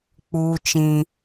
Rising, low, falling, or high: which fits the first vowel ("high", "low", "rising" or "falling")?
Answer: high